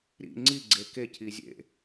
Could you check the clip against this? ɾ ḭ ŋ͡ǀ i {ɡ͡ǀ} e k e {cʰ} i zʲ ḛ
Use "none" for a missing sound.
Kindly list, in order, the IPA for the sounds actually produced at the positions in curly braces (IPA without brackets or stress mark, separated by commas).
ɡ͡ǀ, cʰ